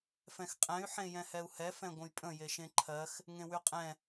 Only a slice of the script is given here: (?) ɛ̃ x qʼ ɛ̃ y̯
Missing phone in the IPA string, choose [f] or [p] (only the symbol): f